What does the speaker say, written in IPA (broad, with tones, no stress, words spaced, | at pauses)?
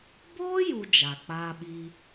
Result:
boː˦ju˨ d͡ʒa˨ k͡paː˦ɓi˦